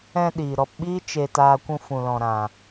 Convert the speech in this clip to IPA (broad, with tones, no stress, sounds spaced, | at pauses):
ɛ̃˧ ɗ iː˨ ɾ ɔ˧ p ɓ iː˦ t͡ʃ e˨ t aː˨ kʷ ũ˧ f ũ˨ l ɔ̃˨ ɾ ã˨